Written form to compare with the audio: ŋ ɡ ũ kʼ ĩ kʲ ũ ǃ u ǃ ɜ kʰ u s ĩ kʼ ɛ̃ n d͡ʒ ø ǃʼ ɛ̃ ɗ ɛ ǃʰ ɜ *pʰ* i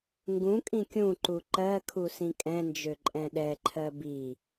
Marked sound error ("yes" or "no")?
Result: yes